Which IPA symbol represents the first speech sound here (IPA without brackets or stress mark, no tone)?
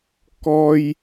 k